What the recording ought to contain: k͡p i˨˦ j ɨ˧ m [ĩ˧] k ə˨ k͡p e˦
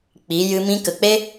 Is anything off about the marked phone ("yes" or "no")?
no